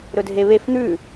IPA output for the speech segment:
ɾ ɵ dʱ e β e f n̪ ʉ

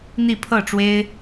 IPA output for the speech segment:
n̪ i˥˧ pʰ ɤ˥˩ ʈ͡ʂ w e˥ ɪ̯

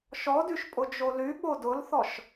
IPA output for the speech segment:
ʃ ɔ d y ʃ pʼ ʊ d͡ʒ o l y ɓ o d ʊ l θ ɔ ʃ

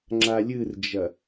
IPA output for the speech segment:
ŋ͡ǁ a lʲ ɨ r d͡ʒ ɐ

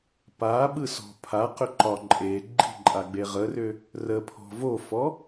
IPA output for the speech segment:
p a ɓ ɯ s ɔ̤ pʰ a q ʏ ǃ ɒ ǃʼ e ɡ͡ǃ i̤ ǃʼ a ɡ͡b e ʁ ə r ʏ | r ə pʰ ɔ̤ v o f ɔ

